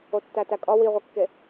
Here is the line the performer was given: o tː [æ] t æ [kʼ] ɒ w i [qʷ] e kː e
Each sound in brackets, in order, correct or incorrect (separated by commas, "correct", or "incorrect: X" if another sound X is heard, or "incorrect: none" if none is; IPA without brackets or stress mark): correct, correct, incorrect: ʁʷ